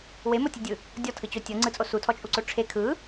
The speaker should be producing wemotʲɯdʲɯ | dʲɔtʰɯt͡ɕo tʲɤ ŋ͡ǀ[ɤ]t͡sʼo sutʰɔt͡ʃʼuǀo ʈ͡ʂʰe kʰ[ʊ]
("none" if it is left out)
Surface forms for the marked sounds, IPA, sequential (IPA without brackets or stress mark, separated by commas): ɯ, ɯ